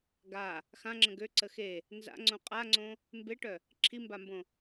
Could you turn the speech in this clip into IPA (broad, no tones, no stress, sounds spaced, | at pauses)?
ɡ a | x ã ŋ͡ǁ ə̃ ɡ ø ǀ ə x e | n z a̰ ŋ͡ǀ õ qʼ a ŋ͡ǀ õ | m b e ʈ œ | ǁʰ i m b a m b õ